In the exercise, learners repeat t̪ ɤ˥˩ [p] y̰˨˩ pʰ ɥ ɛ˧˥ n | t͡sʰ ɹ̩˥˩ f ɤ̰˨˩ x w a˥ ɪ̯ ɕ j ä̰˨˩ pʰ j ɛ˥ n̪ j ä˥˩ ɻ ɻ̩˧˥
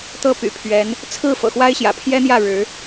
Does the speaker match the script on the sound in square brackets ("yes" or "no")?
yes